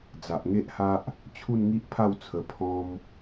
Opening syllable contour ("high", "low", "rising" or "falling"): low